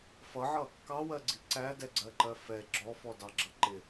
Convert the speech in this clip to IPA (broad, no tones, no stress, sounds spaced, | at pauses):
f ʌ ʕ ʌ | k ɑ w ɜ ɡ͡ǀ i ǀ æ d ɛ ɡ͡ǀ ɜ ǃ ɜ f ɛ ɡ͡ǁ ɔ f ɔ d ɑ ɡ͡ǁ ʌ ǃ ɪ